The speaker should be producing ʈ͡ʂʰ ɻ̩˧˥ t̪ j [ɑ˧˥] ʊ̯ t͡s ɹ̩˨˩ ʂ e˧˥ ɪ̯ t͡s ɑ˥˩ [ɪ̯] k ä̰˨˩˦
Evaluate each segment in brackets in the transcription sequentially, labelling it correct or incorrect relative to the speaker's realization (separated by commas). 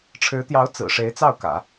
correct, incorrect